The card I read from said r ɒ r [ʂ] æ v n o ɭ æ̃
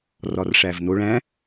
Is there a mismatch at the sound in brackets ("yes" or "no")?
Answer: no